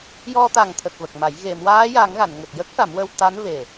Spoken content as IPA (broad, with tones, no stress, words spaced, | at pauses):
jɔ˧t̪a˨˩ŋt̪ʰə˨˩k̚ və˨˩k̚ma˨˩˦j ɣe˨˩˨mwaː˧˥ja˨˩˦ŋ ɣa˨˩˨nŋə˨˩k̚jə˦˥k̚ ʂa˨˩˦mwə˧w t̪a˧˥nve˨˩